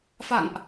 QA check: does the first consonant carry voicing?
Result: no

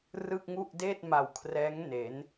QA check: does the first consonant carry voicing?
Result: yes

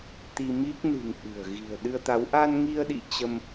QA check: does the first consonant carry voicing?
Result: no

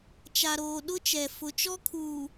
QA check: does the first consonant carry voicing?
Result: no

